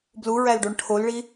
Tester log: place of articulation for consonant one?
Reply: labial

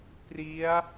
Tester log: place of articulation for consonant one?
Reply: labial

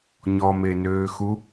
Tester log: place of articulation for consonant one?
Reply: palatal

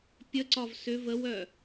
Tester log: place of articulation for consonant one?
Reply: labial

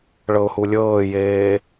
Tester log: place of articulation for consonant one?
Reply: retroflex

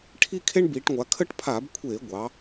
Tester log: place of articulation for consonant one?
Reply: retroflex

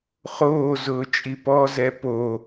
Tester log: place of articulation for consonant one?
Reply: uvular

